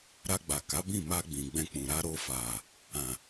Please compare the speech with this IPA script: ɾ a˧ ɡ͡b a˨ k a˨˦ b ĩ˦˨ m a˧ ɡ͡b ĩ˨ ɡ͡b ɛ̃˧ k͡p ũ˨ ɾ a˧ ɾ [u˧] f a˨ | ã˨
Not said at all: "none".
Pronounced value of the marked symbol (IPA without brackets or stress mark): o˧